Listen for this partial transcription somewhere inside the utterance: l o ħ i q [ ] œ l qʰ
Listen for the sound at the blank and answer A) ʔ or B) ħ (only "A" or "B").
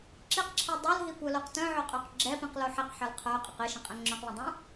B